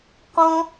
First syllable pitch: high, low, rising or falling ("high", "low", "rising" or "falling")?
high